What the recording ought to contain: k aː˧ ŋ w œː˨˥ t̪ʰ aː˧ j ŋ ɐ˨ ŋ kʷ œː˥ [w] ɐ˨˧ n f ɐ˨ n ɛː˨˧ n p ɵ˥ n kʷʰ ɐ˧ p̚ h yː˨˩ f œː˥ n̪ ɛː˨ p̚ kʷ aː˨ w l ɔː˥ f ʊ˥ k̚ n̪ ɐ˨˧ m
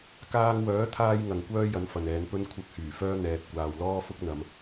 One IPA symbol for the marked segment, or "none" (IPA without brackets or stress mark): j